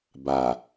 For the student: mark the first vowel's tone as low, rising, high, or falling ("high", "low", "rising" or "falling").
low